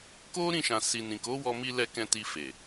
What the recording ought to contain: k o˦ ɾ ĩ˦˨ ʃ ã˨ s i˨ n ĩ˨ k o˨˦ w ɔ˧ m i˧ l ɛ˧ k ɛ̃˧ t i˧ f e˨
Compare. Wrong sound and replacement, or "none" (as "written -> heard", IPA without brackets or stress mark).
none